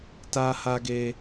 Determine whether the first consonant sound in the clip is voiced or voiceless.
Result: voiceless